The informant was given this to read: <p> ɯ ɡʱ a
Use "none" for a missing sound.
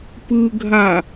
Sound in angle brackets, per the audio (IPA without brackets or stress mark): p